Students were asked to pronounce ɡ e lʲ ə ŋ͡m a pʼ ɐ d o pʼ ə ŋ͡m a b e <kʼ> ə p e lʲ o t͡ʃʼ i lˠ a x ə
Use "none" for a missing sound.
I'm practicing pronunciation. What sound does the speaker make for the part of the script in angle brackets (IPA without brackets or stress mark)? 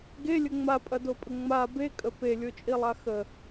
kʼ